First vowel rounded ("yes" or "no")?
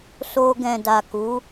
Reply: yes